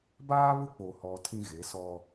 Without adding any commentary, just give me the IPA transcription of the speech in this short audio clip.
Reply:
b aː˦ β ʊ˦ k͡p o˨ h ɔ˨ tʰ ĩ˦ ɣ e˨˦ s ɔ˦

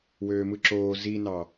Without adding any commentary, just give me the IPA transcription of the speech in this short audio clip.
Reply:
w øː m ɯ ǁ oː z i n ɑ

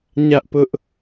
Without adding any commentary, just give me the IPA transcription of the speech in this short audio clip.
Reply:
ɲ ä˦ ʔ p ʊ˦ ʔ

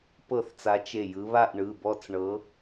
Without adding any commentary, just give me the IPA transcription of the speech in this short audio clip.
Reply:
p ɤ˧˩ θ t͡s a˨˦ t͡ʃ e˧˩ j ɯ˨˦ β a˥˧ ʔ ɳ ɯ˩˧˩ b ɔ˥˧ t͡s ɳ ɤ˨˦

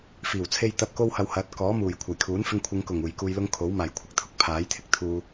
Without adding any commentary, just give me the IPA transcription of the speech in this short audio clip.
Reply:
f iː˨˩ w t͡sʰ e˧ j t̪ ɐ˧ p̚ k o˥ w h ɐ˧ w h ɐ˨˥ t̚ k ɔː˨˥ m uː˨˩ j kʷʰ ɐ˨˩ j kʰ uː˨˥ n f ɪ˧ ŋ kʷʰ ɪ˨˧ ŋ k ʊ˨˩ ŋ uː˨˩ j k uː˧ j l ʊ˥ ŋ kʰ o˨˥ w m aː˨˩ j kʷʰ ɪ˧ k̚ t̪ʰ ʊ˥ k̚ pʰ aː˨˥ j t̪ʰ ɪ˨˥ k̚ t̪ʰ uː˧

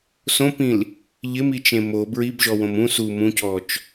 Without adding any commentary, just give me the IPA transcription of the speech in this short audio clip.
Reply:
s õ p ĩ l | ʎ ɪ m i t͡ʃ ẽ m o b ɹ i b ʒ ɔ w õ m ũ s u m ũ c ɔ t͡ʃ

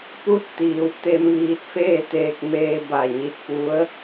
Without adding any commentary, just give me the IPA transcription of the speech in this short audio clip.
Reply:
p u˧˥ t̚ t̪ iː˩˧ w t̪ e˧ m ʋ iː˧ t̚ f eː˥˨ t̪ eː˧ k̚ m eː˧ b a˧˩ ɲ i˧ t̚ p u˧˥ ə̯

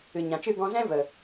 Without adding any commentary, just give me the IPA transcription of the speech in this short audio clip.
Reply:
ɨ˨ ɲ ã˨ t͡ʃ ɨ˦˨ ɡ ɔ̃˧ z ɛ̃˦ v ə˨

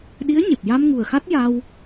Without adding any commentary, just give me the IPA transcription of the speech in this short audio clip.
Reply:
ɗ i˧˥ ə̯ ɲ e˨˩ p̚ j a˧ m ŋ u˨˩ ə̯ x a˦˥ t̚ j a˧ w

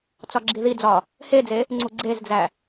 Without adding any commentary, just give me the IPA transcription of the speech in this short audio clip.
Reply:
t͡s ɒ ɡ͡ǁ i ð i d͡z ɒ | h e d͡z e | ŋ͡ǀ u ɡ͡ǀ e z d͡z æ

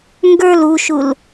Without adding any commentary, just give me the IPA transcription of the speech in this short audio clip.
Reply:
ŋ ɡ ə˞ l u ʃ u l

